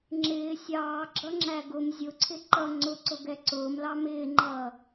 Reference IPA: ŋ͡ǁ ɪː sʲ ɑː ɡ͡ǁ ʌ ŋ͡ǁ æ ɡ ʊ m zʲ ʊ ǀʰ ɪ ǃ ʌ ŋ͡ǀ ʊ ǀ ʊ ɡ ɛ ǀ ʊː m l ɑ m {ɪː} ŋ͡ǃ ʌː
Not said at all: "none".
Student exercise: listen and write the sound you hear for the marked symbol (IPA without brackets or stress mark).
ɪː